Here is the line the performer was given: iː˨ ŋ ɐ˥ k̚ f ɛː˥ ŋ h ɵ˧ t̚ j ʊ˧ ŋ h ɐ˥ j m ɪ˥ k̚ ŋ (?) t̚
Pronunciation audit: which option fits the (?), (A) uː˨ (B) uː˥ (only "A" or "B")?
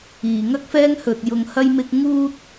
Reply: B